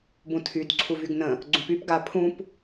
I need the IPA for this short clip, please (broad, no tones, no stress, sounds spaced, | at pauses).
b ũ tʰ y d ǀʰ u v y ɡ n ə̃ | ɡ͡ǀ ũ p y p ɡ a pʰ ũ p